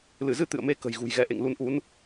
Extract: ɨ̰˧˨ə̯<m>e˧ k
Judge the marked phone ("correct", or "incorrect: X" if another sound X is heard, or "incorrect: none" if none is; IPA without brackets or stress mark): correct